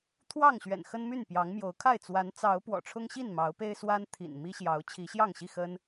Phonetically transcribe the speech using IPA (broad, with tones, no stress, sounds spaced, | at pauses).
t̪ʰ w ɑ˥˨ ŋ ɕ ɥ ɛ̰˨˩ n x ə˦ n m y˥˨ n p j ɑ˨˦ ŋ m j o˨˦ ʊ̯ kʰ a˥˨ ɪ̯ t͡s w a˨˦ n t͡s ɑ˨˦ ʊ̯ p w ɔ̰˨˩ ʈ͡ʂʰ ʊ˦ ŋ ɕ i˥˨ n m ɑ˨˦ ʊ̯ p e˦ ɪ̯ s w a˦ n t̪ʰ ḭ˨˩ n m i˦ ɕ j ɑ˨˦ ʊ̯ t͡ɕʰ i˨˦ ɕ j ɑ˥˨ ŋ ɕ i˥˨ x ə˦ n